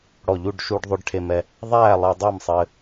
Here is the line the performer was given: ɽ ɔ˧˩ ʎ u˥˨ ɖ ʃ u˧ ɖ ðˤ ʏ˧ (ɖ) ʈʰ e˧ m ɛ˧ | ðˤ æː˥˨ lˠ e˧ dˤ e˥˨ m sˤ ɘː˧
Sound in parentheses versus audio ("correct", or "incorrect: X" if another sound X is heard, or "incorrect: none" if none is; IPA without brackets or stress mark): correct